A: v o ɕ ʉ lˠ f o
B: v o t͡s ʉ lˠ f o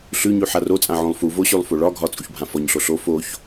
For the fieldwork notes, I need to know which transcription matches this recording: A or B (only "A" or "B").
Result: A